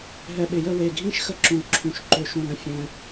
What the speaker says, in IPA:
ɦ ɛ˧ ɓ ɪ˧˩ j ə˥˧ w e˧˩ ɡʱ ĩ˥˧ ʃ x ə˥ ǁ ũ˧˩ l ǁʰ ũ˧˩ ʃ ǃ ø˧ ʃ ũ˧˩ l ə̃˥ fʲ ɛ̃˧

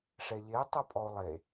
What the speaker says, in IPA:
ʂ ɛ ʎ e tˤ u pʼ ɔ o̯ lˠ e

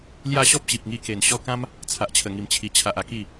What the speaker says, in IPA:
l j a˥˧ ɕ ɔ˦ p̚ ɕ i˨ p̚ ŋ i˧ k e˨˩ n ɕ ɔ˥˧ k ã˦ m | t͡sʰ a˨ ʔ t͡ɕʰ ə˨˩ ŋ i˨˩ m t͡ɕʰ i˨˩ t͡ɕʰ a˨ ʔ a˧ k i˥˧

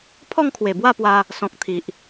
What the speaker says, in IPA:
pʰ ɔ˥˧ ŋ kʰ w e˨˩ b w a˥˧ p w a˧ | s ɔ̃˨ k̚ t̪ʰ i˨ ʔ

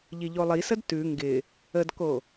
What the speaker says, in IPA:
ʎ i ʎ o lˠ i s ə d t ʉ ŋ ɡ ɪ | ə d k o

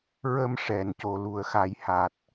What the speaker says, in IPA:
ɹ ə˧ m ʂ ɛ˨˩˨ n c o˨˩˨ l u˨˩˦ ə̯ x a˨˩˦ j h a˨˩ t̚

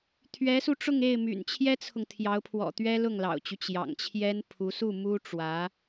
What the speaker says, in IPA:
t̪ʰ ɥ ɛ˧˥ s u˧ ʈ͡ʂ ʊ˥˧ ŋ e˥˩ ɪ̯ m y̰˨˩ n t͡ɕʰ j ɛ˥ t͡sʰ ʊ˨ ŋ t̪ʰ j ɑ˧˥ ʊ̯ pʰ w ɔ̰˨˩ t̪ ɥ ɛ˥ l ʊ˥˩ ŋ l ɑ̰˨˩ ʊ̯ t͡ɕ y˦ t͡ɕ j ɑ̰˨˩ ŋ t͡ɕʰ j ɛ˥ n pʰ u˧˥ s u˥˩ m u˥ ʈ͡ʂ w ä˧˥

